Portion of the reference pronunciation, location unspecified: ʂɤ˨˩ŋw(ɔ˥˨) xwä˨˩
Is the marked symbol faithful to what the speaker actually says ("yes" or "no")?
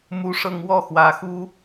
yes